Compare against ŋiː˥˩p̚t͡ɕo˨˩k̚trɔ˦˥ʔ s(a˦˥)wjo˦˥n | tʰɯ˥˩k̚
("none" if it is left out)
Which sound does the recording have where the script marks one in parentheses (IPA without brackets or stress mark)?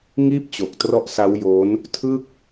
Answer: a˦˥